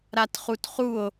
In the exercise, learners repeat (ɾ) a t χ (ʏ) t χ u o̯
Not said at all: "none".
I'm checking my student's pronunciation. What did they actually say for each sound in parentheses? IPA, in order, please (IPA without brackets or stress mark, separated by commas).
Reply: ɾ, u